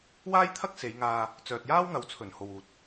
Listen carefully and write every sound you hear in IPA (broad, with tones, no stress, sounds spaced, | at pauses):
w aː˥ j t̪ʰ ɐ˥ k̚ s e˨˧ j ŋ aː˧ | t͡s œː˨ t̚ j aː˥ w ŋ ɐ˨ w t͡sʰ ɵ˨˩ n h o˨ w uː˨ t̚